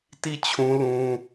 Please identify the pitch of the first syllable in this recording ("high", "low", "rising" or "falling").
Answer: falling